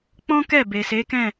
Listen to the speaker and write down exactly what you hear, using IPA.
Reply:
k͡p ɔ̃˦ k ɛ˦˨ b e˨ s e˨˦ k ɛ̃˦˨

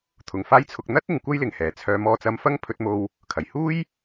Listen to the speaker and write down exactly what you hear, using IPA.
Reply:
t̪ʰ ʊ˨˩ ŋ f aː˥ j t͡sʰ ʊ˧ k̚ n̪ ɐ˥ t̚ ɪ˨˧ ŋ kʷ ɐ˥ j l ɪ˨ ŋ h ɛː˨˩ t͡sʰ œː˨˧ m ɔː˧ t͡s ɐ˧ m f ɐ˥ ŋ pʰ ɵ˧ t̚ m o˧ w | kʰ ɐ˨˩ j h uː˥ j

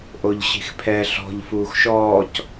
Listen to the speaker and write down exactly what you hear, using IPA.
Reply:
ʔ o ʎ ɕ i̤ x pʰ ɛ ɬ ɔ̤ ʎ f uː x ʃ ɔː c

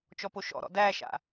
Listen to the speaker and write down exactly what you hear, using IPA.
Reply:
t͡ʃ ɔ p o ʃ ɔ̰ ɾ ɔ̰ d æ ʃ a̰

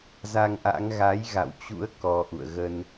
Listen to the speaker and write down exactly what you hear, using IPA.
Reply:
z a˧ ŋ ʔ a̰˧˥ ŋ ɣ a˨˦ j ɣ a̰˧˨ w t͡ɕ ṵ˧˥ ə̯ k ɔ˧ ʔ ṵ˧˨ ə̯ ɣ ə˧ n

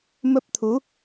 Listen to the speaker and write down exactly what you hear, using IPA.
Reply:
m ə˦˥ p̚ t̪ʰ u˨˦

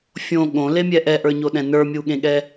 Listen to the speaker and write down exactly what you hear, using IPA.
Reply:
fʲ õ ɠ õ l e mʲ ɛ ʔ ɛ ʔ ə˞ ɲ o ɗ ɛ̃ n ə˞ mʲ u ɠ ẽ ɠ ɛ

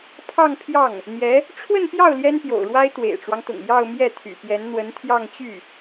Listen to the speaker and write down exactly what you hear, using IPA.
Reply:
pʰ ɑ˥˧ ŋ pʰ j ɑ˥˩ ŋ | n̪ j ɛ˧˥ | ʈ͡ʂʰ w ə˥˧ n p j ɑ˥˩ ʊ̯ l j ɛ˥ n p j o̰˨˩ ʊ̯ ɻ w a˥ ɪ̯ t̪ w ḛ˨˩ ɪ̯ ʈ͡ʂ w ɑ˦ ŋ t̪ ʊ̰˨˩ ŋ j ɑ˥˧ ʊ̯ m j ɛ˥˩ t̪ʰ y̰˨˩ p j ɛ˧˥ n n̪ w ə˧˥ n t̪ʰ j ɑ˥˧ ŋ t͡ɕ y˥˩

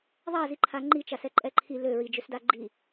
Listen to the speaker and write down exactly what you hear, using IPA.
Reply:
ðˤ a z i ǃʰ a ŋ͡ǃ i t͡ʃ a s ɛ ǃʼ ɛ ǃʰ i l ø ɹ i d͡ʒ ø s d a ɡ͡ǃ i

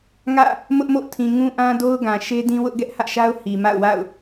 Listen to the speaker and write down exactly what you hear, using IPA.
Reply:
ŋ ä̰˦˨ | m ʊ˦ ʔ m o̰˦˨ tʰ ĩ˨ ŋ ũ˦ ʔ ã˦ d o˦ ʊ̯ ɡ ã˨ ʃ e˦ d ĩ˦ w ʊ˦ ʔ ɡ ɛ˦ ʔ h ä̰˦˨ ʃ a˦ ʊ̯ h i˨ m a̰˦˨ ʊ̯ w a̰˦˨ ʊ̯

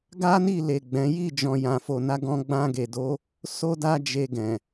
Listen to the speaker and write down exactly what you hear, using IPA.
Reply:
ɡ a˦ n i˦˨ l e˨ ɡ͡b ɛ̃˨˦ j i˦˨ d͡ʒ ɔ̃˨ j ã˨ f o˨ n a˨˦ ɡ ɔ̃˧ ɡ͡b ã˧ ɡ e˨ d o˨˦ | s o˦ d a˦ d͡ʒ e˧ ɡ ɛ̃˨

